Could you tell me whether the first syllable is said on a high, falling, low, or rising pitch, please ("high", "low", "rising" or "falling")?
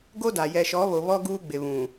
high